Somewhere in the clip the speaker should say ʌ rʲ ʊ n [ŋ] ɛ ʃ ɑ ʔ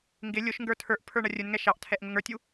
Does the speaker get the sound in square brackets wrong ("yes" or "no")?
no